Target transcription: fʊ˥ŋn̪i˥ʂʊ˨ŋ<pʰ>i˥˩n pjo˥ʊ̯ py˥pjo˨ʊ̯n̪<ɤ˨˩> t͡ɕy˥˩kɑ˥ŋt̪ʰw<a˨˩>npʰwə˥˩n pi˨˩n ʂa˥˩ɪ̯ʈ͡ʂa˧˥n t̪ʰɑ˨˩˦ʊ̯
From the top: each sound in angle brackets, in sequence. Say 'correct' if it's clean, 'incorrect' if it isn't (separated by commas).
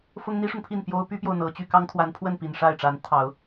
correct, correct, incorrect